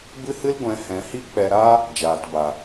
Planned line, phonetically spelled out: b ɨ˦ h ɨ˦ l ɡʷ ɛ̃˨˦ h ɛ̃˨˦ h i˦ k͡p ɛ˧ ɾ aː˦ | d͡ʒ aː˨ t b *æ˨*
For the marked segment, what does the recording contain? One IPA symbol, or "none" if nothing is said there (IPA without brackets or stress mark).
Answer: a˨